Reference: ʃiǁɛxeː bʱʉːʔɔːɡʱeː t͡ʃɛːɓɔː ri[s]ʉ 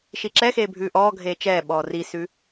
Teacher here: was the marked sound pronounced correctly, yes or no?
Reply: yes